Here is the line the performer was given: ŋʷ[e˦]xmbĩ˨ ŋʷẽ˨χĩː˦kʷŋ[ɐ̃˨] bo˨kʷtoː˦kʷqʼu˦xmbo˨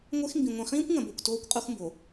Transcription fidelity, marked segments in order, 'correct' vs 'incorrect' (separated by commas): correct, correct